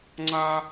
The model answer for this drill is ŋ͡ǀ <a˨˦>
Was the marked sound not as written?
yes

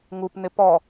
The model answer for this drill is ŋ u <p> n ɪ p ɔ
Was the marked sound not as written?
no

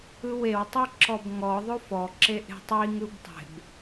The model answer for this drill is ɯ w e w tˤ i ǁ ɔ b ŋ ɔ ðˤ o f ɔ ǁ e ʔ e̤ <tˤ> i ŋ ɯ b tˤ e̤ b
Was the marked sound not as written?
no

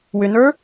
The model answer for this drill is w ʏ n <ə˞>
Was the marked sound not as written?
no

